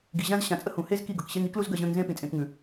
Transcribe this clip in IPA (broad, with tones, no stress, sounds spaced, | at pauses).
ɡ i˨ ʑ ã˦ z ɕ ã˨ t͡sʼ ə˦ h ũ˨ h e˦ z k i˦˨ ɡ ɤ˨ k ɕ e˦ ŋ i˦ k l u˦ z ɡ ɜ˧ ʑ ə̃ː˧ ŋ z ẽ˦ p ĩ˨ t͡sʼ ẽ˧ k ŋ ʉ˨